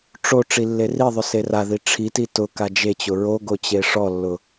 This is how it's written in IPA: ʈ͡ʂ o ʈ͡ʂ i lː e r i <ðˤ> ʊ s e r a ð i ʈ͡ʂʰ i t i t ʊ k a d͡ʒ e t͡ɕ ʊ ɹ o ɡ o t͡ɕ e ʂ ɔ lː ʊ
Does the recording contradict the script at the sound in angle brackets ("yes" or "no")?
no